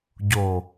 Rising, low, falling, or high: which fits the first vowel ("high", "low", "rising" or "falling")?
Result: low